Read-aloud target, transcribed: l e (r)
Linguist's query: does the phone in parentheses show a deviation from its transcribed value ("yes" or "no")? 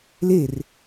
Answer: no